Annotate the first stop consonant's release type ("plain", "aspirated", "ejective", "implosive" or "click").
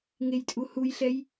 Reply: ejective